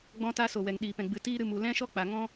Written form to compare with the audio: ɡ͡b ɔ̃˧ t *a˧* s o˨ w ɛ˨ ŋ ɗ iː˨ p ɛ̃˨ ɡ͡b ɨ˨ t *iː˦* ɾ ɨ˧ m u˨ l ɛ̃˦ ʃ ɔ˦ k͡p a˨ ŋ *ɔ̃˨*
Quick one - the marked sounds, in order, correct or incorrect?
correct, correct, incorrect: ɔ̃˦

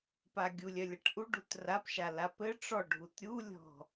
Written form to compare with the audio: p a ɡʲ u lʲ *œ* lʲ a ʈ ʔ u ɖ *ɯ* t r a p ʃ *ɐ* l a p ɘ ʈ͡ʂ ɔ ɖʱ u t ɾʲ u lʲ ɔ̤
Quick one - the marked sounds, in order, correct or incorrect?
correct, incorrect: u, incorrect: a

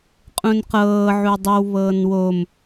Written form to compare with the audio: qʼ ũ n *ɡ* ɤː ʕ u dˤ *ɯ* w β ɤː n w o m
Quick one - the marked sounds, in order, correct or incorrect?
incorrect: q, correct

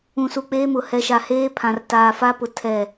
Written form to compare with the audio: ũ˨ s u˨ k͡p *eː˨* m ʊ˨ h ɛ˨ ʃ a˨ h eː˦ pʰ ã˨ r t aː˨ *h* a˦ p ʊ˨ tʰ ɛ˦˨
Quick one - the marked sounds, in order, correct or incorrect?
incorrect: eː˦, incorrect: f

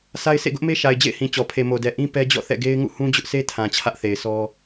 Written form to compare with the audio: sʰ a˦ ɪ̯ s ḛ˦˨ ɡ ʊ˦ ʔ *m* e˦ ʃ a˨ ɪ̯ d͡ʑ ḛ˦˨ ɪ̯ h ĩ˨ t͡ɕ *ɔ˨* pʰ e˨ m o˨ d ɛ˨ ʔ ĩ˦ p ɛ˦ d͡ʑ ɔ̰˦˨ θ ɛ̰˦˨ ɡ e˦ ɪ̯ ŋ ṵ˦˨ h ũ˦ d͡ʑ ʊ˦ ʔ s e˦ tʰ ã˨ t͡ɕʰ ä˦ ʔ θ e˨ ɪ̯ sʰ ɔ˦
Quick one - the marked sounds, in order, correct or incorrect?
correct, correct

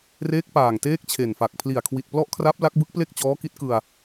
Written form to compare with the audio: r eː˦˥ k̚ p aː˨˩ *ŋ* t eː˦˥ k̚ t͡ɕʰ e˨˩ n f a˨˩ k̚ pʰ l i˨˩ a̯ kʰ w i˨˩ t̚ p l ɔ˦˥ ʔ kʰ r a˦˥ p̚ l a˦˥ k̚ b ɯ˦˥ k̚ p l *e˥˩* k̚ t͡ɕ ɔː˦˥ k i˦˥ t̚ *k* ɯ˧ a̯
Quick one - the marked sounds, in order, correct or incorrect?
correct, correct, correct

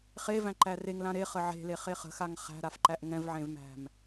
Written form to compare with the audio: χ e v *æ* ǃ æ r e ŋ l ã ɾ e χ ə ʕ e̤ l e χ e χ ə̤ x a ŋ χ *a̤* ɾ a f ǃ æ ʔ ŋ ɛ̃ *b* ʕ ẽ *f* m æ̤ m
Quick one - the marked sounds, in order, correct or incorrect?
incorrect: æ̃, incorrect: æ̤, incorrect: v, incorrect: v

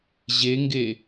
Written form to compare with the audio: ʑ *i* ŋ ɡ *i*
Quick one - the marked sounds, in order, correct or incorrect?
incorrect: e, incorrect: e

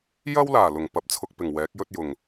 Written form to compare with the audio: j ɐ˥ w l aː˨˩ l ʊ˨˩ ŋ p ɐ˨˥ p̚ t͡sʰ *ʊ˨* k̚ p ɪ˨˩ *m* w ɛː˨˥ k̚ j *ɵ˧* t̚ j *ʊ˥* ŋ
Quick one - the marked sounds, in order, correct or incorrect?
correct, incorrect: ŋ, incorrect: ɵ˥, incorrect: ʊ˨˩

